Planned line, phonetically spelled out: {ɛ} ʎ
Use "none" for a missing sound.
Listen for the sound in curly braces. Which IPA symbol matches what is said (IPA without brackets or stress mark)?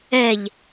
ɛ